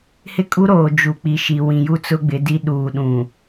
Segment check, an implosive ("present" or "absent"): present